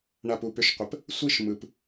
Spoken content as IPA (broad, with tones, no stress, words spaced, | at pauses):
ɳa˧˩pu˩˧pʏ˧˩ʃqʷə˩˧p | sʷi˥˧ʃ mɯ˩p